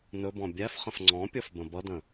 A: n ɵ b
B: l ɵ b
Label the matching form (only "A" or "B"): A